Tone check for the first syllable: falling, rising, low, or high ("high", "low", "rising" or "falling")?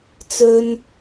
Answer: high